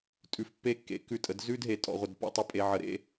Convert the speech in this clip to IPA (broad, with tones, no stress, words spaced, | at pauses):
tʼʉ˧fpːe˥kːḛ˧ kʉ˧˩tʼə˩˧d zʉ˥d ɦe˧tʼɔ̰˩˧ʁʷə˧˩d pɔ̰˥˧ tˤə˥˧pʼe˧ʕə˧ɾḛ˥